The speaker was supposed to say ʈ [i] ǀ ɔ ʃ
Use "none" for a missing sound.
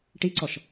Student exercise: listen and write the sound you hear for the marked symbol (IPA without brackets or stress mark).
i